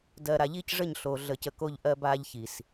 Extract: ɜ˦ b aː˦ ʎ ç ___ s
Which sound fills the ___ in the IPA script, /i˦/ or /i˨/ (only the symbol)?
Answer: i˨